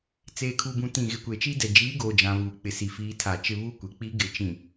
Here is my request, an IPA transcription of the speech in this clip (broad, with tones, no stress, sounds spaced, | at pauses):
t͡s eː˨ kʰ u˨ b ũ˨ t ĩ˨ ɣ ɪ˨ kʷ e˨ t͡ʃ i˦ d ɛ˨ d͡ʒ iː˨˦ ɡ oː˨ d͡ʒ ã˨ β uː˨ k͡p ɪ˨ s i˨ f iː˨˦ tʰ a˨ t͡ʃ ɪ˦ β u˦˨ kʷ e˨ k͡p i˦ ɡ ɪ˨ t͡ʃ ĩ˨